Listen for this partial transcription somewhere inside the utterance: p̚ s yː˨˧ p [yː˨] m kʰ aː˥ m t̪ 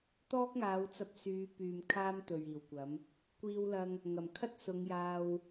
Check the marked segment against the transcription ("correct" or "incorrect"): correct